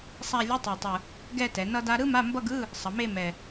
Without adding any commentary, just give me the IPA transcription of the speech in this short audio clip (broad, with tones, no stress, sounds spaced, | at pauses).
sˤ a˥˧ lʲ o˧˥˧ tˤ i˨˩ tˤ ɯ˨˩ | ɡ ɛ˥˧ t ɛ˩˧ n ʌ˥ d a˥ ɾ ɯ˥ m a˧˥˧ m b ʌ˥˧ ɡ ɯ˧˥˧ | sˤ ʌ˩˧ m e˥˧ m ɛ˨˩